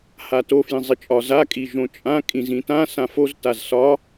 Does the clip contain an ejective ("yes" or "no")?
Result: yes